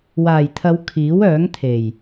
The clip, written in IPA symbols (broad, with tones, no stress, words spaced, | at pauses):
waː˨˩jt̪ʰɐ˨˧w kʰiː˨˥wœː˨˥ŋt̪ʰe˨˩j